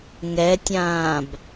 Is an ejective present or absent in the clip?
absent